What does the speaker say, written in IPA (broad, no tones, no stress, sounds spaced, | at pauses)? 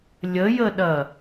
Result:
lʲ ə j ə ɗ ɐ